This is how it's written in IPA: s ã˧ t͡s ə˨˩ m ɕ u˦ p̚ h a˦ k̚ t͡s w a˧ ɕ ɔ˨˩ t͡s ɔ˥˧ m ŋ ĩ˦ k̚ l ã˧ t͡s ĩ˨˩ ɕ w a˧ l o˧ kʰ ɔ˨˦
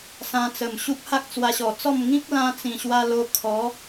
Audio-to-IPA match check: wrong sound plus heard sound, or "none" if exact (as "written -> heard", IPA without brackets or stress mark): none